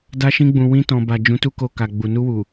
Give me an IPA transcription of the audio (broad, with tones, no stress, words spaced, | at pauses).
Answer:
da˧ʃĩ˧ɡ͡bũ˨wĩ˧ tɔ̃˨ba˨ d͡ʒũ˨˦tu˦ko˧ka˨ ɡ͡bu˨ nu˧wu˨